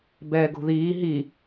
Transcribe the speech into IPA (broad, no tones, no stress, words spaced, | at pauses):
bɛːɡo̤ðiː ɦi